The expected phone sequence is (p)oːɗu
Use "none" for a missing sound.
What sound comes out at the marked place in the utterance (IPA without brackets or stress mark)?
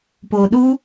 p